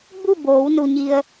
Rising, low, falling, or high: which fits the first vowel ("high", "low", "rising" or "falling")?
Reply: falling